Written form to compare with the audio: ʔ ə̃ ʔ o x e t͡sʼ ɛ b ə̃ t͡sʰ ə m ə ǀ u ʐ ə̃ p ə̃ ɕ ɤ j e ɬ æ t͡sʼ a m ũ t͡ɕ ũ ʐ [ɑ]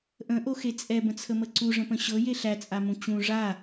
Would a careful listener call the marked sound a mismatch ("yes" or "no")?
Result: yes